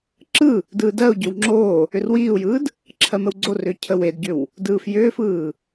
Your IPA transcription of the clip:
ǁ ɯ | d ɯː d ɜ u̯ ɟ ʏ w ŋ͡ǁ oː | ʏ r w iː u̯ j ɯː d | ǁʰ ɜ m ə w ɡ͡ǀ o r ʏː cʰ ə w e d ɟ ʏ w | d ɯː f j ʏː f ɯː

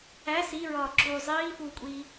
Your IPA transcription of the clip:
æ s i ɹ ɒː ǁ uː zˤ iː f uː kʷʼ iː

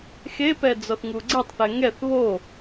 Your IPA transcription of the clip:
x e p ɛ d͡z ɔ θ ŋ u ɡ͡ǀ ɛ tˤ θ ɛ ŋ ɛ θ β o

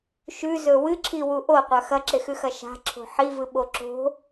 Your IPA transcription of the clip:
ʃ ʉ z ɵ w ɨ ǁʰ i w u ʔ o qʷ ɐ x ɐ ǁ e x ʉ x ɐ ʃ a̤ ǁʰ o̤ ħ i v ɨ ɓ o ǁ o̤

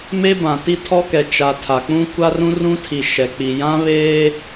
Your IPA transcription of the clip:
m e˦ b ã˨ t i˦ tʰ ɔ˦ k ɛ˨ t͡ʃ a˨ tʰ a˨ k͡p ũ˦ kʷ a˦ r ũ˦ r ũ˦ tʰ i˨ ʃ ɛ˨ k͡p i˨ j ã˦ β eː˦

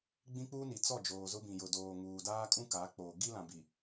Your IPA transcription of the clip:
ɡ͡b ĩ˦ k͡p uː˦ n i˨ t͡s ɔ˦˨ d͡ʒ oː˨ z ʊ˦ b ĩ˨ j ʊ˨ d oː˨ ŋ uː˨ d aː˦ kʼ ũ˦ k aː˨˦ k͡p oː˨ ɡ i˦ l ã˨ b i˨

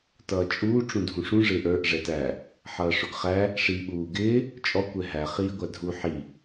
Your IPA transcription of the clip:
t ʌː t͡ʃʼ uː ʈ͡ʂ ũ dʱ ũ ʂ ũ ʐ ɪː ʔ ə˞ ʔ ʐ ɛ t æ | ħ ʌː ʂ ʊ ɡ χ æ | ʂ iː ɓ uː ɡ ɪː | t͡ʃʼ ɔ kʷ ɛ ɦ æ χ iː ɡʷ æ dʱ u ħ i

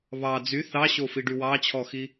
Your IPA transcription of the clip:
β ɑ d͡z y θ ɑ ɕ o f i ɖ y w ɑ t͡ɕʰ ɔ x i

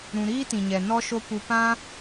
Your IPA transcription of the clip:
ɾ ũ˧ ɾ iː˦ t ĩ˨ ɲ ɛ˨ n ɔ˦ ʃ o˦ p u˧ p ã˦

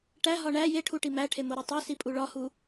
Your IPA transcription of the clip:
ʈ æ ɦ ɒ ɳ æ j e ʈʰ u ʈ i m æ ʈʰ e m o ɾ o tˤ e s i pʼ u ɭ ɒ h u

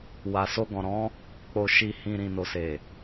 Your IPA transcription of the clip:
w a˨ s o˧ ɡ ɔ̃˨ ɾ ɔ̃˨˦ | k͡p o˨ ʃ i˨ h ĩ˨ ɾ ĩ˨ n o˨ s e˨

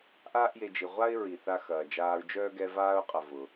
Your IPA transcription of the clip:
ʔ aː˥ ʔ j e˨ d͡ʒ i˩ ʁʷ a˥ ɪ̯ ɹ i˩ θ a˦ x ɐː˩ d͡ʒ aː˦ ɹ d͡ʒ œː˥ ɡ ɛ˦ v aː˥ ʊ̯ qʼ ɐ˨ v ʊ˩

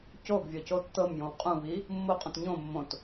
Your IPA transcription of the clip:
c o ɡ vʲ ɔ c o tː ɤ m j õ w qʼ ũ β i | mː o qʼ ũ t ɲ õ mː õ t

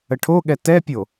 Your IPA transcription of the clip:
ə ʈʰ o ɠ ɛ t ɛ pʲ o

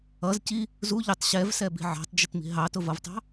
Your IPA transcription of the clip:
ʌ z c i | z u ʎ ʊ tˤ ɕ ɛ v s ɛ b i̤ ʕ ɑ̤ tˤ d͡ʒ ɪ t m i̤ ɦ ɑ t ʊ v ʌ v tˤ ɑ̤

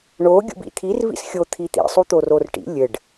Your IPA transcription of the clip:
ɳ o ɡʲ ṵ b ḭ t̪ʰ i r v ḭ s xʲ o t̪ʰ i t̪ ḭ sˤ u t̪ o r o r ʈ ḭ lʲ ɘ ɖ

